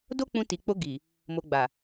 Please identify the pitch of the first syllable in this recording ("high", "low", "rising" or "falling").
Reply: high